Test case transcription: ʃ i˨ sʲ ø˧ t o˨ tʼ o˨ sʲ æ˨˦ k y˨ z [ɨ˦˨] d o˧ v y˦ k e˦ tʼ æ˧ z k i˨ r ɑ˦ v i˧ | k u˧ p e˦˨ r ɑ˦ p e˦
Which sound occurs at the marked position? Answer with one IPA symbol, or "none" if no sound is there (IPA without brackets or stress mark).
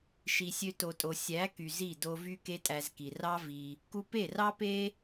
i˦˨